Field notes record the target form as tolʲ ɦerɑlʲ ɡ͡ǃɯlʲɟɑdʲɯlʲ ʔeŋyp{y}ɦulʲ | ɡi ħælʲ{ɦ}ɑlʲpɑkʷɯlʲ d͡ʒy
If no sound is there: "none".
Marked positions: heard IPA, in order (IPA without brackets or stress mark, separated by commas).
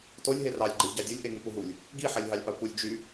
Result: u, ɦ